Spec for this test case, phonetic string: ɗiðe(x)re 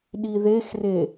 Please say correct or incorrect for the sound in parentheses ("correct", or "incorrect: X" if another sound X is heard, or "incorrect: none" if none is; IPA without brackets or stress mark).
correct